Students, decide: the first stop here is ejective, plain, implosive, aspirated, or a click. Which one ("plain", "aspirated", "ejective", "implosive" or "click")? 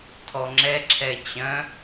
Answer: aspirated